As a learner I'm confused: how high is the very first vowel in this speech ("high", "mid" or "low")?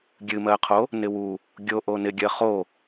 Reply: high